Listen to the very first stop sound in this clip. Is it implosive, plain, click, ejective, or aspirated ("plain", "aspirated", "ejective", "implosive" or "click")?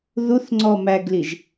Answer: click